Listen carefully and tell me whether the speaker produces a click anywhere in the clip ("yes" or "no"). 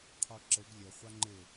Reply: yes